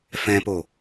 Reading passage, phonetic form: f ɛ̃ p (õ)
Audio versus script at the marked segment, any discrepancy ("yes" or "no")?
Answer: yes